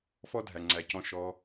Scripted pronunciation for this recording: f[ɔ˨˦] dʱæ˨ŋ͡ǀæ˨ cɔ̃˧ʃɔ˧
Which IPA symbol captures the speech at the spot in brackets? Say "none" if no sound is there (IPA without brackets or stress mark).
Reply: ɔ˦